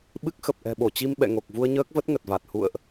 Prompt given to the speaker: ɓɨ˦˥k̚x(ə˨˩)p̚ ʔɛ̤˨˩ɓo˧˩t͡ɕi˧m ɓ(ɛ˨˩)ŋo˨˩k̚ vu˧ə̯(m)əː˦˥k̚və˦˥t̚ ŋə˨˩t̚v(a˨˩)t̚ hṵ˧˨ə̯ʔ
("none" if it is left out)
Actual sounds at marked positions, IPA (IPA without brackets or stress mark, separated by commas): ə˨˩, ɛ̰˧˨, ɲ, a˨˩